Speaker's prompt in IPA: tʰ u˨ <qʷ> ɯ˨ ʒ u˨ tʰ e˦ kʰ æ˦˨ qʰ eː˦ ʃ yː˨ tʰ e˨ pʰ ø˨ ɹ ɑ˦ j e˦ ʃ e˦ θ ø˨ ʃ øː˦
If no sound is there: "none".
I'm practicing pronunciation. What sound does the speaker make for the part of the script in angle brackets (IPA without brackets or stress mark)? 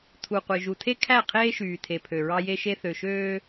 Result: qʷ